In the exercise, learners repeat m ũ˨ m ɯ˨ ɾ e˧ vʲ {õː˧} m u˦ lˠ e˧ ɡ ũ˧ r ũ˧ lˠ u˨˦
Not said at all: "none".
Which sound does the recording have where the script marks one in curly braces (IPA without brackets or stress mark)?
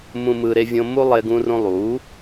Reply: õ˧